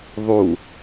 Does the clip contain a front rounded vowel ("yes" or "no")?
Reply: no